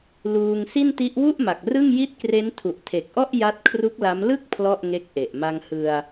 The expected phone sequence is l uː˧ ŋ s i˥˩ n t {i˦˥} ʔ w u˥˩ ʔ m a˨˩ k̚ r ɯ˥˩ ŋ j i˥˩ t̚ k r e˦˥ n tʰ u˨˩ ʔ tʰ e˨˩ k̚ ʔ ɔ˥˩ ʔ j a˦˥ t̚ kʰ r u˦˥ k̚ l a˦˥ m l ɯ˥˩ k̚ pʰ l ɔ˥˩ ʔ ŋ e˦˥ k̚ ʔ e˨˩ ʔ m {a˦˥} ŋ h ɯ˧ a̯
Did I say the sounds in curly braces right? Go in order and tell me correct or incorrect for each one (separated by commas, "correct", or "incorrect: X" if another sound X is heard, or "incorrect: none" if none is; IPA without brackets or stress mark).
correct, incorrect: a˧